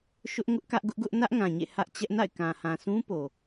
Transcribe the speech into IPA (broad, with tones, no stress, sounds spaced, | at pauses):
ʃ ʊ˦ ʔ ŋ ʊ˦ ʔ k ä˦ ʔ ɡ ʊ˦ ʔ ɡ ʊ˦ ʔ n ä˦ ʔ ŋ ã˨ ɲ ḛ˦˨ h ä˦ ʔ t͡ɕ ɛ˦ ʔ n a̰˦˨ ɪ̯ k ã˨ h ã˨ sʰ ũ˦ p o˨